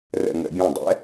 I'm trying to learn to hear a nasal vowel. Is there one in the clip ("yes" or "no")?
yes